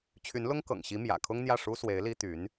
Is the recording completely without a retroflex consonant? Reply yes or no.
no